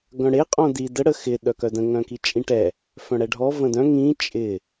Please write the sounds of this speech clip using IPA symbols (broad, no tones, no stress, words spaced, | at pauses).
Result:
ɡœ̃ɽe qʼõdi də ɽəxɪ ɗœkœdə̃ ŋœ̃kit͡ʃʼĩʈɛ | fœ̃ɽɛɖʱɔ və̃dœ̃ ŋĩ t͡ʃʼɪ